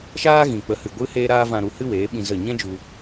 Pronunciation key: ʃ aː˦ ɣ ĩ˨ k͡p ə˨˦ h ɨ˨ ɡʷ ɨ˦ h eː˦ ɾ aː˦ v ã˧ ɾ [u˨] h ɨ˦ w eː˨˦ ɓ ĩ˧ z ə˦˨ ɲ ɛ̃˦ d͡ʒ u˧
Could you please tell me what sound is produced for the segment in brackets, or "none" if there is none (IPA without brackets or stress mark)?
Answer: u˧